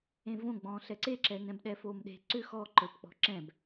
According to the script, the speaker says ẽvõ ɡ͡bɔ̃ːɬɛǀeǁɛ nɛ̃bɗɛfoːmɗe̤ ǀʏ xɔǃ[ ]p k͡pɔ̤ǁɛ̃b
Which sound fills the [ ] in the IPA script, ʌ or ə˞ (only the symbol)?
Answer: ə˞